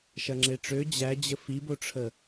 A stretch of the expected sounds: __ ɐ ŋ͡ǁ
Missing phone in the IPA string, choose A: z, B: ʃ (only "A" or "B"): B